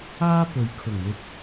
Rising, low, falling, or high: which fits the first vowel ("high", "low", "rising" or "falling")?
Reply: high